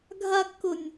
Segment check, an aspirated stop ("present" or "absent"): absent